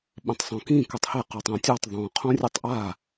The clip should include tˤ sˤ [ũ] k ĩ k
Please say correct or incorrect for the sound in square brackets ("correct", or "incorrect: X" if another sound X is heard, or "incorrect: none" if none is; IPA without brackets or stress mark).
incorrect: õ